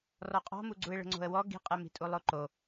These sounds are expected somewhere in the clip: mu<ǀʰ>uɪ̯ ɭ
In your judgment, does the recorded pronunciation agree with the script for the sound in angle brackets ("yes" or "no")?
no